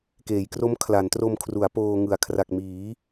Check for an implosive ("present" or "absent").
absent